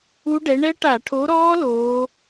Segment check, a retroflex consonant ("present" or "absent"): present